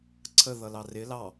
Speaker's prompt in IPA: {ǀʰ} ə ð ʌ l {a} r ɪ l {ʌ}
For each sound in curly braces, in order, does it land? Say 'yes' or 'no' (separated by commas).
yes, no, no